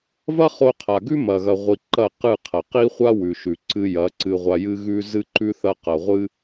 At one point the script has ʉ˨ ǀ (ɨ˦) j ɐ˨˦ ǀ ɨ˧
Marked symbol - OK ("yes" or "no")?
no